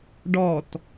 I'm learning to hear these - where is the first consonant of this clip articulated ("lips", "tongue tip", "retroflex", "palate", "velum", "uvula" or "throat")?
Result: retroflex